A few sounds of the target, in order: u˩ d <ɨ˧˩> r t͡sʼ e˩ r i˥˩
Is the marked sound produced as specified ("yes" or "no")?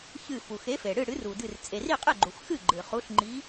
yes